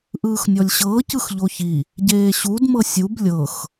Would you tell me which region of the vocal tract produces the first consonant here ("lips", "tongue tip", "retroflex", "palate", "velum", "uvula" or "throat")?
throat